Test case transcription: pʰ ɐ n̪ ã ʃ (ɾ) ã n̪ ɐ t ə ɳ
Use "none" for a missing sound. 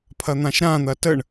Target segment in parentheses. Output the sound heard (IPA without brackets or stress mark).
ɾ